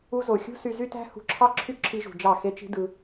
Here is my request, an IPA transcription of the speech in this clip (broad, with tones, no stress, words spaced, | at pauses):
u˧zo˨xʲṳ˦ sy˧zy˦tæ̤˦ hṳ˧ǁʰɑ˦ ǁʰy˦ǁʰi˧ʒṳ˨ d͡ʒɑ˦˨xe˦t͡ʃi̤˦ dɯ˧